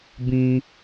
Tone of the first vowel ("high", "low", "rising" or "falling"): low